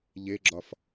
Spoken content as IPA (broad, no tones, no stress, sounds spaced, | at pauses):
ʎ e ɡ͡ǁ ɒ f